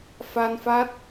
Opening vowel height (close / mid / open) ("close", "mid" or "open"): open